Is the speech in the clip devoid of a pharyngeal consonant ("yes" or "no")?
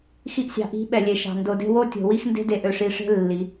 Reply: yes